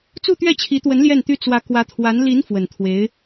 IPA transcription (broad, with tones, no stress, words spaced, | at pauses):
t͡su˥˧t̪ɥɛ˥˩t͡ɕʰi˧˥t̪wə˧˥n ljɛ˥˩nt̪y˥ t͡swä˧˥ kwä˧˥t̪ʰwa˧˥n li˧˥n fwə˨˩nt̪ʰwe˧˥ɪ̯